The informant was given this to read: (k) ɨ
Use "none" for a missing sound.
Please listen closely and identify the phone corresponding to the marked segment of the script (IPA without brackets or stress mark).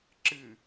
ǁ